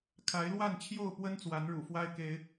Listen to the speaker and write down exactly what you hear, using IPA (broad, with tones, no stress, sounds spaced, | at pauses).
kʰ a˨˦ ɪ̯ l w a˥˨ n t͡ɕʰ j o˥˨ ʊ̯ p w ə˦ n t͡s w a˨˦ n ɻ ṵ˨˩ f w a˦ ɪ̯ k e˦ ɪ̯